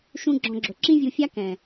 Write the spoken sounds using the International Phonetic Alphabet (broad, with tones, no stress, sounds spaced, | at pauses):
ʃ ũ˦ ɡ͡ǁ ɔ̃˧ ɡ͡ǁ ɵ˨ ǁ ĩ˦ vʲ u˧ fʲ a˦ k ɛ̃˨